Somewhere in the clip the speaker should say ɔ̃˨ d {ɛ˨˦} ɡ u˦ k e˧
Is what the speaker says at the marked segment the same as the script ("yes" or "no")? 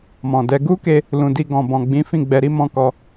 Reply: yes